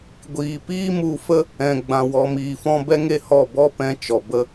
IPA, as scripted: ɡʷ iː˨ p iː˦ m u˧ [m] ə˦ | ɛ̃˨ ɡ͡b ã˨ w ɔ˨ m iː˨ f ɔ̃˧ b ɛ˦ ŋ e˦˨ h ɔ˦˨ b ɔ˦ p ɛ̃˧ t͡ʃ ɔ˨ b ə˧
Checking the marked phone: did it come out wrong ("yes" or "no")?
yes